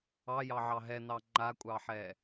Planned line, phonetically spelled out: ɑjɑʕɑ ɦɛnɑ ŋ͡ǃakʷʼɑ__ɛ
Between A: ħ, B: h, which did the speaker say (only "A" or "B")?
A